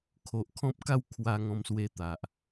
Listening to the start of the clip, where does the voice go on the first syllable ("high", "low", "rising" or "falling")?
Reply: low